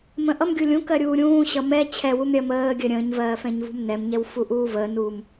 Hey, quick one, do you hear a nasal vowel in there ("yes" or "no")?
yes